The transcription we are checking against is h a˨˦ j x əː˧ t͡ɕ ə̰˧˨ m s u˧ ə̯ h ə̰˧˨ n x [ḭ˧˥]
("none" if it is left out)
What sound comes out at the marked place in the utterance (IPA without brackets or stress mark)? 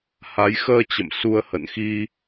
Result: i˧